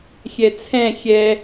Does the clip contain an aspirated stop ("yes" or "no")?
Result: yes